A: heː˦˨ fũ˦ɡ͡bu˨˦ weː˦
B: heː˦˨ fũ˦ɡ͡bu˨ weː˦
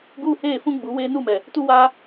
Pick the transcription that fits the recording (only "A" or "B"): A